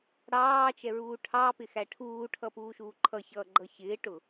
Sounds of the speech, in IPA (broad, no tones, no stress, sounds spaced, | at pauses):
ɽ ɑː t͡ʃ ɛ ɹ uː ʈʰ ɑ p ɪ x æ ʈʰ uː ʈʰ ʌ p uː ʃ uː ǃʰ ʌ ç ʌː ɡ͡ǃ ʌ ç ɪː ʈ ʊ